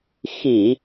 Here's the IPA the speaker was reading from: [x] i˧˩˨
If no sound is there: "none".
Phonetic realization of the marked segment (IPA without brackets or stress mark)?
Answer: x